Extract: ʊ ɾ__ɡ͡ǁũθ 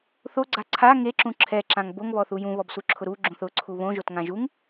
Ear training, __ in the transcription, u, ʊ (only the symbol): u